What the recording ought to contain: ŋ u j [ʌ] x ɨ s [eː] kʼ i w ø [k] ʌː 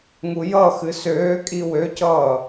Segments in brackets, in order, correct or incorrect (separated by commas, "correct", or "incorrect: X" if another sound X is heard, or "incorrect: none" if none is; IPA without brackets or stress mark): correct, incorrect: øː, incorrect: c